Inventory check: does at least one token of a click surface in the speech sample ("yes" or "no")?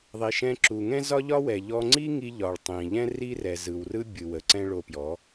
yes